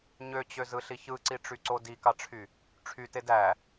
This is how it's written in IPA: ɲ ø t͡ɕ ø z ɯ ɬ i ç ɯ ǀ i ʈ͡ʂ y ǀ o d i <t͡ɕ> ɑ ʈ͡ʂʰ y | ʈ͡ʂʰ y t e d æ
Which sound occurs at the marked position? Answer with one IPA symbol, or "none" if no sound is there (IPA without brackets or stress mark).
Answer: k